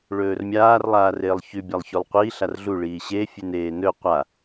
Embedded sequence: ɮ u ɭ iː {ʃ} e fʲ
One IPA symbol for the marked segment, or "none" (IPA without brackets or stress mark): ɕ